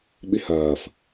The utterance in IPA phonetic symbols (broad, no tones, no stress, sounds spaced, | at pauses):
ɓ i h ɐː f